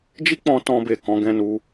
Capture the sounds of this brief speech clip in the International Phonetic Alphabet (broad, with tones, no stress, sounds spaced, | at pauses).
d͡ʒ i˦ k͡p ɔ̃˧ t ɔ̃˧ b e˨ k ɔ̃˨˦ ɡ ɛ̃˧ n u˧